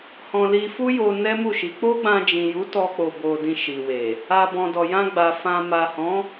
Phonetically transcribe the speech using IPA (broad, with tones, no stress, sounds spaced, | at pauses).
h ɔ̃˧ l i˧ f u˦ j o˧ n ɛ˦ m u˦˨ ʃ i˨˦ k͡p o˦ ɡ͡b ã˧ d͡ʒ ĩ˨ j u˨˦ t ɔ˧ k͡p o˨ b o˨ d ĩ˧ ʃ i˨ w e˨ | a˨ b ɔ̃˨ d ɔ˨ j ã˧ ɡ͡b a˨ f ã˨ m a˨ h ɔ̃˨˦